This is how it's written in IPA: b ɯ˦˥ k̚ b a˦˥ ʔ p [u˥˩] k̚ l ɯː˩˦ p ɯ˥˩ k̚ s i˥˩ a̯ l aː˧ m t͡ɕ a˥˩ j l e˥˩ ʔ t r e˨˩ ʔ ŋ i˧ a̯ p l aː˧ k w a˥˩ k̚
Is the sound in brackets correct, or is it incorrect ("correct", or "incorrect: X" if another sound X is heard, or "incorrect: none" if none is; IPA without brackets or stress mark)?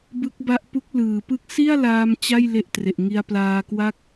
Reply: incorrect: u˦˥